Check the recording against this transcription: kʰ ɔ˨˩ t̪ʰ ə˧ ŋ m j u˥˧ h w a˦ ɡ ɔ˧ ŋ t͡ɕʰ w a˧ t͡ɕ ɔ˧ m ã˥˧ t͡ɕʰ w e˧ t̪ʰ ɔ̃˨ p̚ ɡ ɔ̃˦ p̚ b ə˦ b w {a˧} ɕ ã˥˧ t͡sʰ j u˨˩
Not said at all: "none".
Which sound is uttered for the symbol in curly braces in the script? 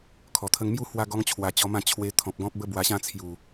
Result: a˧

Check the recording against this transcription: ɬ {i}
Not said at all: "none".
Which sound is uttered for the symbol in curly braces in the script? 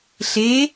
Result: e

